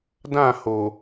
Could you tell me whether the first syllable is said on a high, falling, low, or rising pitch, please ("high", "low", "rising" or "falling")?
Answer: falling